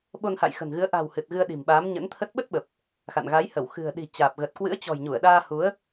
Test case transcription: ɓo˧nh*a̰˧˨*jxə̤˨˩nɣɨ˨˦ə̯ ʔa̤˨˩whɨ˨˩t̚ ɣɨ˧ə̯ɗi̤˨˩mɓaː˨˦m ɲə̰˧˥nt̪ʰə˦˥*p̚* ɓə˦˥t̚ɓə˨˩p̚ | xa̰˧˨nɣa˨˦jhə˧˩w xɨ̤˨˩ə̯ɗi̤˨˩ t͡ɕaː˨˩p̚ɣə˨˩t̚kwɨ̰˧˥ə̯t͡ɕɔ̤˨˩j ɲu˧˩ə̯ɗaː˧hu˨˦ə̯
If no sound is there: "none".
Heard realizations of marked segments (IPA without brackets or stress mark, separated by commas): a̰˧˨, t̚